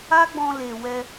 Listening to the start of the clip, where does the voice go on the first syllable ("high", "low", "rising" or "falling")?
high